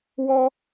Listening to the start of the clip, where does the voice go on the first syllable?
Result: high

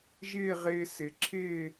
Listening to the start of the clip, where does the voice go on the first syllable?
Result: falling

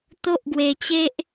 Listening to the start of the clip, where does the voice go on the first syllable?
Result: high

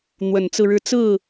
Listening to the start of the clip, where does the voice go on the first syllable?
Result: low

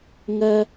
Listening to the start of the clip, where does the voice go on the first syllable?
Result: high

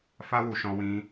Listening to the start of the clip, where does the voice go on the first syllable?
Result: high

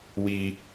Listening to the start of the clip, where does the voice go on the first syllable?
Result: high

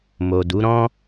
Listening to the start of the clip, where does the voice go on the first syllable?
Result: low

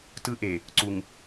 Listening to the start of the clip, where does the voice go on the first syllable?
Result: high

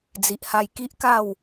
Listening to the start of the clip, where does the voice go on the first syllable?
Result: low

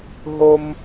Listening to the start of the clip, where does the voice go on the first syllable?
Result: low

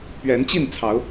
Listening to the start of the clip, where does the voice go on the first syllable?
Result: rising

